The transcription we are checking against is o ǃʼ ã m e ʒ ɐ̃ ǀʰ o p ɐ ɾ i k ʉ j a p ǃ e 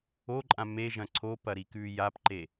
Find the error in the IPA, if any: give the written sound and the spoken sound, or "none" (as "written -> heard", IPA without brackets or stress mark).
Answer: none